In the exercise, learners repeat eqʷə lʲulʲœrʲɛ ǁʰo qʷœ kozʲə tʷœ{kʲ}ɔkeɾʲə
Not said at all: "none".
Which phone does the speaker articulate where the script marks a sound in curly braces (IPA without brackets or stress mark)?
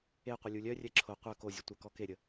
k